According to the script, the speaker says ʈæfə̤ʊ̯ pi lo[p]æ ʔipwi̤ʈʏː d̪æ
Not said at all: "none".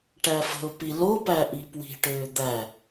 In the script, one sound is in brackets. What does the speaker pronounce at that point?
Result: p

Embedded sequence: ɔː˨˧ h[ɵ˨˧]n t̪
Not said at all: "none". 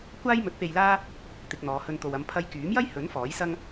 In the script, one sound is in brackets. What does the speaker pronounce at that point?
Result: ɵ˧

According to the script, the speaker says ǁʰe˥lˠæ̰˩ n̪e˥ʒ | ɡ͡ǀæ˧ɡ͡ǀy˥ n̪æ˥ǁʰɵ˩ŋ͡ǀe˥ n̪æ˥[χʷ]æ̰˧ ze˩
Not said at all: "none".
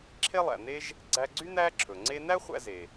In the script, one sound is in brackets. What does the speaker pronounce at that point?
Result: χʷ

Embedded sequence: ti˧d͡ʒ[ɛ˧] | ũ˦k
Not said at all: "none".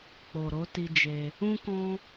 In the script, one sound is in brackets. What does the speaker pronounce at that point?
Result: e˧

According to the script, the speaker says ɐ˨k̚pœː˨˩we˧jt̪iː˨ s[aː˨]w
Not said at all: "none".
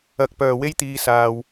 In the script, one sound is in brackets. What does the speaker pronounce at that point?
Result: aː˨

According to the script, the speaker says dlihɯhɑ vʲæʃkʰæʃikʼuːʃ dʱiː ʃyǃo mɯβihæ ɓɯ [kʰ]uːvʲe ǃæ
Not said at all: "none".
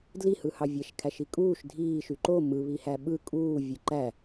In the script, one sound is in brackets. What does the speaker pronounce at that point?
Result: kʼ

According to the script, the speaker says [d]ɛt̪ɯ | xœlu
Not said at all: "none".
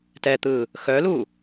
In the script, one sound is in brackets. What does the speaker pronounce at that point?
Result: t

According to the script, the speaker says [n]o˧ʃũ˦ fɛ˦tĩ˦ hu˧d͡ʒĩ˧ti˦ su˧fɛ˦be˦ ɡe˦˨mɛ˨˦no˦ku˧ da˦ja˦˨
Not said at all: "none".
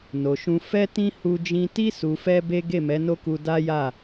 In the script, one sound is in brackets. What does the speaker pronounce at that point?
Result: n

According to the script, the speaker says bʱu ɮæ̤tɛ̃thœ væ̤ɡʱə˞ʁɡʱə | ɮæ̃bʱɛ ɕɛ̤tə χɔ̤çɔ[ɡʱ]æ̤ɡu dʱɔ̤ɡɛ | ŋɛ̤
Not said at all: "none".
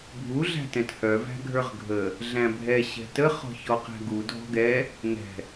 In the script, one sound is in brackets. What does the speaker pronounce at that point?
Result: q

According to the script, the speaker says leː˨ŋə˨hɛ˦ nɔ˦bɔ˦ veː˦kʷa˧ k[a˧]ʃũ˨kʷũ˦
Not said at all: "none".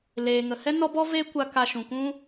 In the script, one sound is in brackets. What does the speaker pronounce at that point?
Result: a˧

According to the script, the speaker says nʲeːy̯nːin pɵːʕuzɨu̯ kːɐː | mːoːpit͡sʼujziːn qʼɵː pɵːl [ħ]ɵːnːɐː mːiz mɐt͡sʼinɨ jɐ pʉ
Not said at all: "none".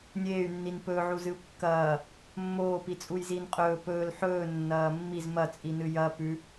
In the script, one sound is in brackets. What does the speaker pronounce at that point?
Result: ħ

